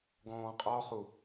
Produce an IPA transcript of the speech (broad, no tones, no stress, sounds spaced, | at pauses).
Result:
ɡ ɔ̃ː qʼ ɔ χ u